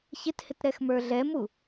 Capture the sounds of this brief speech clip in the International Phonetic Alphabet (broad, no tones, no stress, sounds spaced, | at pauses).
ç ɪ t h ɪ t ɾ ɛ x m ə˞ ɮ ɛ m u